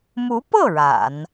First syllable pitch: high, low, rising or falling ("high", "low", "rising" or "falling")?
rising